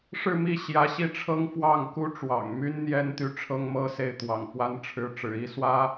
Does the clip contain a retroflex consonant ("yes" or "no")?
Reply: yes